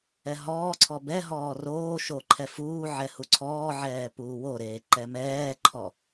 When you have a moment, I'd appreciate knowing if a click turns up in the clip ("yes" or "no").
yes